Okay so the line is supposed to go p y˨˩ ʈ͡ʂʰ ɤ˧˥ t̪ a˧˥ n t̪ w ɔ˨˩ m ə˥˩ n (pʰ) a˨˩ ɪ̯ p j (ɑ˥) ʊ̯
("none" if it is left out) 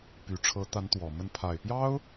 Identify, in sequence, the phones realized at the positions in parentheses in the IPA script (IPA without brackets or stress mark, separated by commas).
pʰ, ɑ˥